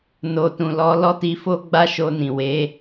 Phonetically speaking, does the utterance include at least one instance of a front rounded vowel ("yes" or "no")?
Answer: no